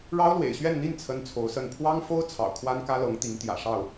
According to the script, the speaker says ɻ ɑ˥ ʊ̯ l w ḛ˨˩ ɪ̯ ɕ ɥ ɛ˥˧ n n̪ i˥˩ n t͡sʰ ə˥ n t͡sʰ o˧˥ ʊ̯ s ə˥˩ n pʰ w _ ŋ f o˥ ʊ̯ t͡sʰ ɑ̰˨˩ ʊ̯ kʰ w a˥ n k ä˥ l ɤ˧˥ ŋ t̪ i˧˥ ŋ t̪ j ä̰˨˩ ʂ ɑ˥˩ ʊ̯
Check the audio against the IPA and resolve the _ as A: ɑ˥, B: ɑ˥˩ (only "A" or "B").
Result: A